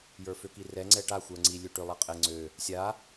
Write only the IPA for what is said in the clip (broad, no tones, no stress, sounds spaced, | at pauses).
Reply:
j ə˞ f ø k i r ɛ ŋ͡ǀ ɛ ʈ a xʷ ə˞ ŋ͡ǀ i lʲ ø ʈ ø lˠ a qʼ ɛ ŋ͡ǀ ø | sʲ a